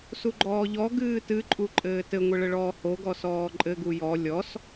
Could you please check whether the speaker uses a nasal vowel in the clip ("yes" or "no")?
no